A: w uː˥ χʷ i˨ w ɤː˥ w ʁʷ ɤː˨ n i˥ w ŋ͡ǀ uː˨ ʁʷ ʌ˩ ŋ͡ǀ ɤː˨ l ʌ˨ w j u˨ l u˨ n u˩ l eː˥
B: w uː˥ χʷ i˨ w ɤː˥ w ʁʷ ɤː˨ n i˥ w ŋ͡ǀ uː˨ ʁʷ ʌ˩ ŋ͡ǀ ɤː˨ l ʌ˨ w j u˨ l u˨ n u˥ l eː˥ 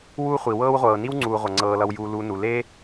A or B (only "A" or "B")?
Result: A